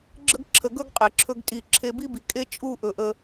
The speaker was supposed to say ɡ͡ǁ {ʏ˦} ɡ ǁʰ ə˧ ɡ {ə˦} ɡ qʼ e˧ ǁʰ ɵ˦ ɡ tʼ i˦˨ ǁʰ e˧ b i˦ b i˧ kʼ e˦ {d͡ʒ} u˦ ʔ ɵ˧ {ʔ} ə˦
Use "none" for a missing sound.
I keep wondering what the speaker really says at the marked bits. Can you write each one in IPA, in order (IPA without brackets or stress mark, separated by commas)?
ə˦, ɵ˦, t͡ʃʼ, ʔ